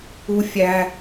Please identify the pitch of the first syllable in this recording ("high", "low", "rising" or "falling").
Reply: high